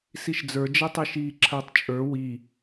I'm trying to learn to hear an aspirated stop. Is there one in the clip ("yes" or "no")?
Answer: yes